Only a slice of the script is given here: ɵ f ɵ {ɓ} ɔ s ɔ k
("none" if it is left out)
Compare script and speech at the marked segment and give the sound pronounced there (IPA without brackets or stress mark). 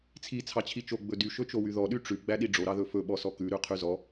ɓ